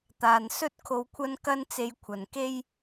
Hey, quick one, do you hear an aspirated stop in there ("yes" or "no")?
yes